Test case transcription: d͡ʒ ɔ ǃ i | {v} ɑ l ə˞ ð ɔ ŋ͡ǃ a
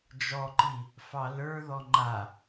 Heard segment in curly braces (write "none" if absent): f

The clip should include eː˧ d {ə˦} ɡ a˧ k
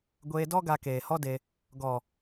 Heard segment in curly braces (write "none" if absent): ɔ˦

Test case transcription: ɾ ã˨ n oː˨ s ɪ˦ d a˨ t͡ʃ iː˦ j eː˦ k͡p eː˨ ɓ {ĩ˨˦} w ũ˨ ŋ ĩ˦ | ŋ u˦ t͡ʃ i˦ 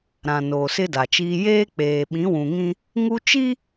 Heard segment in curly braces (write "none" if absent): ĩ˨˦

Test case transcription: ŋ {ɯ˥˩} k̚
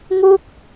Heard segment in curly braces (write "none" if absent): u˥˩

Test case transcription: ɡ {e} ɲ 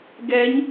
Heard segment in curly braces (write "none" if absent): ɛ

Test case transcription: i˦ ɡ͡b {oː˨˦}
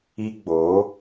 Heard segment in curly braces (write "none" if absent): oː˨˦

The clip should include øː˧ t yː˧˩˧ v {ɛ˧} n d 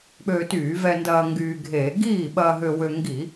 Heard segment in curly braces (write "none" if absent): ɛ˧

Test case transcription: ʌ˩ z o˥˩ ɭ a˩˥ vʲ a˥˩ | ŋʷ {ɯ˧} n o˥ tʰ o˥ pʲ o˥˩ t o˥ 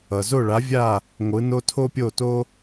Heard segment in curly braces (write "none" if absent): ɯ˩˥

